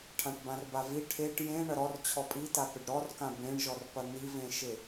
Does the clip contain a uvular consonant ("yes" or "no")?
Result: no